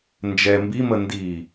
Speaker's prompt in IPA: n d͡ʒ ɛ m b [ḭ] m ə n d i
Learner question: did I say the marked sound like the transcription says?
no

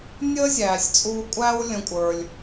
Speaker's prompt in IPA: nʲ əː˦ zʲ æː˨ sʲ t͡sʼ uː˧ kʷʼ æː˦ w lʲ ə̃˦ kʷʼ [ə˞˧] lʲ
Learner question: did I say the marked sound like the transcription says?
yes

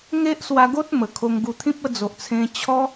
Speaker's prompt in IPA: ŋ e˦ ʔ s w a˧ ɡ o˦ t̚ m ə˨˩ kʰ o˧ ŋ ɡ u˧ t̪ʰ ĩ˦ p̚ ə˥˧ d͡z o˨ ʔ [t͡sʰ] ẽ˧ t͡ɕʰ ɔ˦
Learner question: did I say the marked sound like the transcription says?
yes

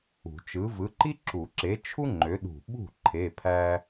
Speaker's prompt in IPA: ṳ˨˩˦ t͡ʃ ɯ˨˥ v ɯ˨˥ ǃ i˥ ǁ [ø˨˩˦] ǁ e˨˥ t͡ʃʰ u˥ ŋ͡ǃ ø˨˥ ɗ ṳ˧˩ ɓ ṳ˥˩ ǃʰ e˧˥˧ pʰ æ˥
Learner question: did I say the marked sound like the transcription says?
no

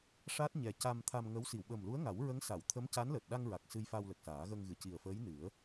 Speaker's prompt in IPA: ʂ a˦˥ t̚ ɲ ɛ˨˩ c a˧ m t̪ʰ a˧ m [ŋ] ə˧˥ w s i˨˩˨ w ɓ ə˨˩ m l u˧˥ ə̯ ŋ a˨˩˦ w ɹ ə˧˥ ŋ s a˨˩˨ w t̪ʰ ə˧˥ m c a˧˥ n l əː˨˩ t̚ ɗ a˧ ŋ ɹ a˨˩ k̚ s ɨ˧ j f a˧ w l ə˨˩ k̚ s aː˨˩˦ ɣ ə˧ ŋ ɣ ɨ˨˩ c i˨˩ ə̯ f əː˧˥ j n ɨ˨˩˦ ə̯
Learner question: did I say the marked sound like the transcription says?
yes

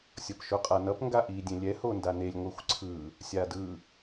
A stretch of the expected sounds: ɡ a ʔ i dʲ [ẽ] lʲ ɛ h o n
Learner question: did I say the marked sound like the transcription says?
yes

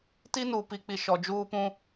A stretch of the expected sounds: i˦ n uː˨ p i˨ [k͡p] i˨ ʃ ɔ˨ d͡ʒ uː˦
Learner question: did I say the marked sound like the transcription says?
yes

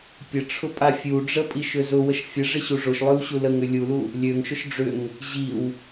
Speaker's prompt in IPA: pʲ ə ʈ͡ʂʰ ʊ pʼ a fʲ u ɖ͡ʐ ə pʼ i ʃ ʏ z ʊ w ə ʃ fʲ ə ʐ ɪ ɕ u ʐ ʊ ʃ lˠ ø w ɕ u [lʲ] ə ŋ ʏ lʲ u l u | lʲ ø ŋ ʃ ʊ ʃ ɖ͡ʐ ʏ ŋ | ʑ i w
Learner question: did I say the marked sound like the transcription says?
no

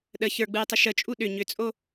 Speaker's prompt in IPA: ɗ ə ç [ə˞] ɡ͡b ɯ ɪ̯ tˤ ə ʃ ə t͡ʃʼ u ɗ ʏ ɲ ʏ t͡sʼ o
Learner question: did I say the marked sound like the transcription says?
yes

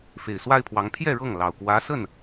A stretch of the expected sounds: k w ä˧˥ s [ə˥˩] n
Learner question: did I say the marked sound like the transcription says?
yes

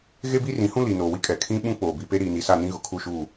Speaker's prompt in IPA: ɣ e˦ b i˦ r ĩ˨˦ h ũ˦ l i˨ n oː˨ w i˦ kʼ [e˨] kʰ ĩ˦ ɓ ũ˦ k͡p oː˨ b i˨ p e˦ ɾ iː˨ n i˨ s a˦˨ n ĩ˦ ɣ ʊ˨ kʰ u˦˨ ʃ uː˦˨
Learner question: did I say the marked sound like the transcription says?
no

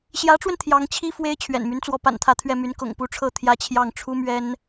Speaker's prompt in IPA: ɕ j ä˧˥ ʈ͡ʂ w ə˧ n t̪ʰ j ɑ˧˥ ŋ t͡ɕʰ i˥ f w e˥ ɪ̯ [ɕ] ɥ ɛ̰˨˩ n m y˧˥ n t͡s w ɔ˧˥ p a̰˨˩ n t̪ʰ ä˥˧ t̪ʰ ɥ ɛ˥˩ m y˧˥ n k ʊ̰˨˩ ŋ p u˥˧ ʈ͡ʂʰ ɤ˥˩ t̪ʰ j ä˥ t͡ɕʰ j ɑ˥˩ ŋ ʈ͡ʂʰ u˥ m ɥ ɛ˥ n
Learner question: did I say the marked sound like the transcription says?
no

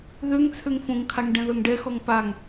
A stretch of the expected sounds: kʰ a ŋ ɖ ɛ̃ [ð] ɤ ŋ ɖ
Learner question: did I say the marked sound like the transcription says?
yes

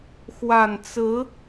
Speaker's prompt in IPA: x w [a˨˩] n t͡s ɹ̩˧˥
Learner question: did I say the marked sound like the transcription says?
yes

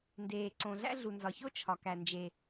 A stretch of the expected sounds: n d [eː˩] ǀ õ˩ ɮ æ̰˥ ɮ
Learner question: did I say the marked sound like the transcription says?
yes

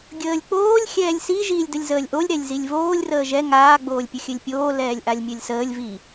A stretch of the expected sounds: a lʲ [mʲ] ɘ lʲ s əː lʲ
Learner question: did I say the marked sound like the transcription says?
yes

